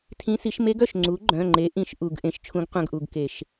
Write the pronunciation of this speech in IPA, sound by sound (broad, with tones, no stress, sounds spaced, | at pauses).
tʰ ĩ˧˥ s i˩˥ ʃ m e˧˥ ɡ œ˩˧˩ ʃ ŋ͡ǀ u˩˥ ɡ͡ǃ œ̃˩˧˩ ŋ͡ǃ e˩˥ ʔ ĩ˩˧˩ ʃ ʔ u˧˩˧ ɡ ʔ ẽ˩˥ ʃ t͡ʃʰ ũ˧˥ ɡ qʷ œ̃˧ ɡ ʔ u˩˧˩ ɡ k e˧˩˧ ʃ